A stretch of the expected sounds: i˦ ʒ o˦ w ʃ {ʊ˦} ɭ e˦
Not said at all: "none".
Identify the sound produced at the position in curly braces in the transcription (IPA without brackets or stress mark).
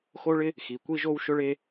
ʊ˦